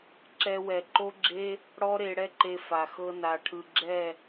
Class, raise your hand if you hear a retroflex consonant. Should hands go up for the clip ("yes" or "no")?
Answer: yes